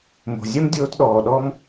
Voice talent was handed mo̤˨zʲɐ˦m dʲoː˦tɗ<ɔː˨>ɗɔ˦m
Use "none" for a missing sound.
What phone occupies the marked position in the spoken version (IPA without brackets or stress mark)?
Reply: ɔː˨